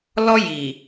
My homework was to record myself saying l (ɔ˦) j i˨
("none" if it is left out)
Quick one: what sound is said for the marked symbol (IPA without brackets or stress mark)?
ɔ˦